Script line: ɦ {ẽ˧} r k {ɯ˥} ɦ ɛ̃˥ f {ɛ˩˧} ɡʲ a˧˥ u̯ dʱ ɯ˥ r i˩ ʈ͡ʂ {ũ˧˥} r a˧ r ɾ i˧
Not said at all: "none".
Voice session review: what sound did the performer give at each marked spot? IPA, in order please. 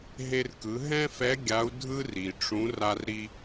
e˧, ɯ˩˧, ɛ˧˥, ũ˧˥

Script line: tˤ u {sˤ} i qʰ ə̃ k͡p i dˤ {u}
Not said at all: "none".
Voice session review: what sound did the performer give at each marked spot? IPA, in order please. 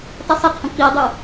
sˤ, u

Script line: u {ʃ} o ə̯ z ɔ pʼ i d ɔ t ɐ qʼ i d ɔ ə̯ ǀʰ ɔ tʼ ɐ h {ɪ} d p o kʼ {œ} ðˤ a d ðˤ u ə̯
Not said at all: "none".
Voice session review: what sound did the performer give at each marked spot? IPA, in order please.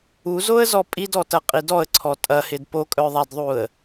z, ɪ, œ

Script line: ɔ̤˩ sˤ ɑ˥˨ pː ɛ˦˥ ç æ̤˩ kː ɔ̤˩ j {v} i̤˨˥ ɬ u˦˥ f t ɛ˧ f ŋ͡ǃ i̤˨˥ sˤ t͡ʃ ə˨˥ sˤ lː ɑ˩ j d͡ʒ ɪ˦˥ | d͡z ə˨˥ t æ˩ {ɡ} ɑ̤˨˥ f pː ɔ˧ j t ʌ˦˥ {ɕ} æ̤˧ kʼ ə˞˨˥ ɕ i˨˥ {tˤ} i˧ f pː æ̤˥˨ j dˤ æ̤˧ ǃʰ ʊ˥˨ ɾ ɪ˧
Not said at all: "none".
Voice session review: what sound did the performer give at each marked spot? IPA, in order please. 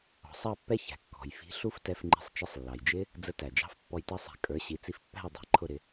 f, d͡ʒ, sˤ, t͡s

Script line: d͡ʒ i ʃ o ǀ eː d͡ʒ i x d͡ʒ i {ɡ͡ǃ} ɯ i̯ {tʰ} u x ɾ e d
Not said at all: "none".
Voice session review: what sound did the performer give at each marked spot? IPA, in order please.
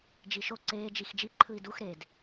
ǃʰ, d

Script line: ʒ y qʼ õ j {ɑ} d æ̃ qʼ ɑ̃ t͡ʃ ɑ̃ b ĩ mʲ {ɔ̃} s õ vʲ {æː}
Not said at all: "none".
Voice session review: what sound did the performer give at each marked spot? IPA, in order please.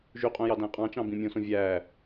ɑ, õ, æː

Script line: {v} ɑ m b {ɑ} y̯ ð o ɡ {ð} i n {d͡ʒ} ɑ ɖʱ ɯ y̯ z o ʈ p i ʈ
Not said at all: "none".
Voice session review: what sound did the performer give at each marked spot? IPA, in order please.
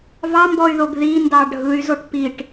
v, ɔ, ð, d

